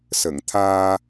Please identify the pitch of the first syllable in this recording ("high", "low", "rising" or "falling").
low